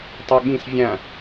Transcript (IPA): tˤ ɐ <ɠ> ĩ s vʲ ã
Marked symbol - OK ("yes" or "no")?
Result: yes